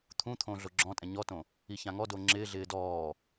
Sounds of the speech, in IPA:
t̪ʰũt̪ʰõ ɮoɡ͡ǁɔ̃tʼɛ̃ ɲɔtõ | içãŋɔdo ŋ͡ǁɪːɮɪː dɔː

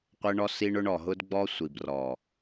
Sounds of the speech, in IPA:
qʷə˦ɳɔ˦s i˦ɳʊ˦ɳ ɔ˨ɦʊ˦dɡ͡bɔ˦ sʷi˨brɔ˨

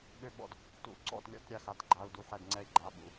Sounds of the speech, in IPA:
ɓø˥˩ɓɔ̰˥˩d | tṵ˨˩˦ǀɔ̰˥˩t lʲɔ̰˥˩tɾʲa˧˩xa˩˧˩t ɡ͡ǃa˩˧˩u̯du˧˩ħɛ˧˩d ŋ͡ǀɛ˧˩i̯ɡ͡ǃa˩˧˩ ɓṵ˩˧˩

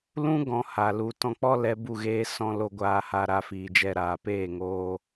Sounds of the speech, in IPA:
lũ˦ ɡɔ̃˧ha˨lu˨ tɔ̃˧k͡pɔ˦lɛ˧ bu˦˨ɣeː˧sɔ̃˧ lo˧ɡʷaː˧ ha˧ɾa˧ fiː˨d͡ʒɛ˧ɾaː˨peː˦˨ ŋoː˧

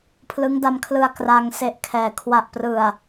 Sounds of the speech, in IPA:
pʰlɯ˦˥ŋda˧mkʰlɯ˧a̯ kra˧ŋ se˦˥ʔkʰɛː˨˩ kʰwa˨˩ʔprɯ˨˩a̯

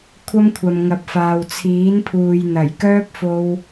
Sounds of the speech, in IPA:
kʷʰɐ˥mkʷʰɐ˨mŋɐ˨p̚faː˨w t͡sʰiː˨˥npʰuː˨jn̪ɐ˨˩j kœː˥p̚fo˧w

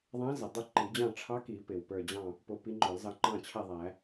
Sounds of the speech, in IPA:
ðˤæ̃˧˥zə˩ dˤə˥˨ ǃi˨˩˦d͡ʑɑ̃˥˨ ʈ͡ʂʰɑ˧˥ki˨˩˦pɪ˩w pə˞˧˩d͡ʑɑ̃˥˨ | pʊ˧ pi˧˥ŋ͡ǃɔ˨˩˦lzɑ˧˥ ŋ͡ǃɑ̃˥˨t͡ɕʰɛ˥˨ðˤæ˨˩˦

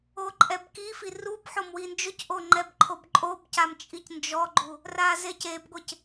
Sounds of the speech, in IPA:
oǃʼɛbkifi rub ħomwind͡ʒʊcʔo ŋ͡ǃɛbǃʰobǃʼobcam t͡ʃʼicnd͡ʒɔɡ͡ǃu | razecebɡʷɪc

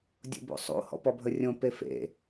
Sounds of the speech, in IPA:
dʲo̰bo̰sˤo̰ hɔ̰pɔbʱərʲõ pefḛ

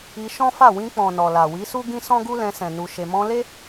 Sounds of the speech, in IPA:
i˧ʃɔ̃˦fa˦˨ wĩ˧k͡pɔ̃˨ nɔ˨la˨wi˨˦su˦ ɡĩ˦sɔ̃˦ɡu˦lɛ̃˧ sɛ̃˨nu˨ ʃe˨mɔ̃˧le˦

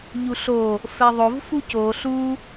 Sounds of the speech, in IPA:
ʎuɬo | fɛðˤov fuco ɬu

